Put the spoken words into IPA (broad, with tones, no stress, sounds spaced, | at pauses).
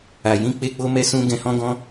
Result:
a˨ j ĩ˨˦ k͡p e˧ k͡p o˦ m ɛ˦ s ũ˦ ɡ ɛ̃˧ h ɔ̃˦ ɡ ɔ̃˦